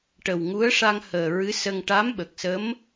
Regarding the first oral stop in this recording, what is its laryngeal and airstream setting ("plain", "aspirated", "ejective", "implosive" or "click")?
plain